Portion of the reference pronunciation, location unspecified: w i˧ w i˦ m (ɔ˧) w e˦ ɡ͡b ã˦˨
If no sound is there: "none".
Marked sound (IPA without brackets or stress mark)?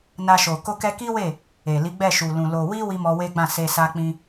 ɔ˧